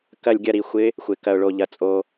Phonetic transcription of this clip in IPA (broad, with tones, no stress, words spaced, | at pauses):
kɐ˧˩lʲɡʲɐ˧˩ ɾi˩xʷɪ˨˦ | xʷɪ˩kɐ˩ʊ̯ɭo˩ʎɐ˩ t͡sʼo˩